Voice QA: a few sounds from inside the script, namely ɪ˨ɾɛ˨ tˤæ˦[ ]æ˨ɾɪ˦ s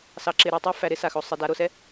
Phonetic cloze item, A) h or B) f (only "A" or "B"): B